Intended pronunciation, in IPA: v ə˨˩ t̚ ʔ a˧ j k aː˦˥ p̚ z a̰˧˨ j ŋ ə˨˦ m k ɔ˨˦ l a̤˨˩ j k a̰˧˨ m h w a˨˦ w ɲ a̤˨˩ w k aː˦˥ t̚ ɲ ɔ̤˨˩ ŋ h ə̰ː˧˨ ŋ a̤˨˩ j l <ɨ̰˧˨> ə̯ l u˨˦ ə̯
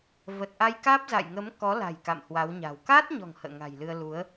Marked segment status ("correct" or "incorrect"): incorrect